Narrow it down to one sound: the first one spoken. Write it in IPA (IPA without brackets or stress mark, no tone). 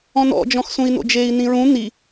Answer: ɔ̃